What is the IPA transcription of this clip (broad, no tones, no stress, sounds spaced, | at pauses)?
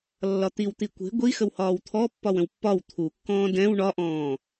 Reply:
lː ɒ t̪ i w t̪ i kʷ e̤ ɡʷ i x ə w h ɒː w t̪ʰ ɔ pː ɒ w ə̃ w pː ɒ w t̪ʰ u kː ɔ̃ː d ɛ̃ w ɳ ɒ ʔ ɔ̃ː